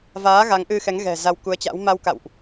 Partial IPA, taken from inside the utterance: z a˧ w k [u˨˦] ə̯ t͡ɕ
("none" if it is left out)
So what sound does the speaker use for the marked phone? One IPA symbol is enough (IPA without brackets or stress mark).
u˨˦